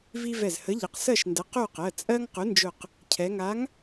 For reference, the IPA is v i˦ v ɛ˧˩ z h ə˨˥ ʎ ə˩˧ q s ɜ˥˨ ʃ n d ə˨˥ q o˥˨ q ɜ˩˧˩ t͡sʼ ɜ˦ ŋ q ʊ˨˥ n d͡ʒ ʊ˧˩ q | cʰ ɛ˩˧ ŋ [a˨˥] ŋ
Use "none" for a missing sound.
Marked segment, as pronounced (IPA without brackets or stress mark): a˨˥